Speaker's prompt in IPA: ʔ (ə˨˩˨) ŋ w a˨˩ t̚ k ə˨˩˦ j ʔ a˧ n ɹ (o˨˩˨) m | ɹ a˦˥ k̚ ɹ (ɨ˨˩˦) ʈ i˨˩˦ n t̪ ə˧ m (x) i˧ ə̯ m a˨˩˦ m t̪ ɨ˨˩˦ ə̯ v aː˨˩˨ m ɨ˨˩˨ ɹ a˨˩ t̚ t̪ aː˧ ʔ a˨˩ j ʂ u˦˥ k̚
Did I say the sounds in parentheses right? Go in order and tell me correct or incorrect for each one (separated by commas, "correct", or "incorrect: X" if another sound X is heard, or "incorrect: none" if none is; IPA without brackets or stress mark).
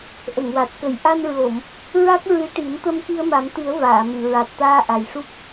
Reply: correct, correct, incorrect: ɨ˧˥, incorrect: k